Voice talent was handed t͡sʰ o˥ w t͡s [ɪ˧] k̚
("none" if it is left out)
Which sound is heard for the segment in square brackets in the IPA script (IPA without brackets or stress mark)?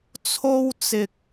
ɪ˧